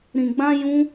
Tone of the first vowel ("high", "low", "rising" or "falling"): low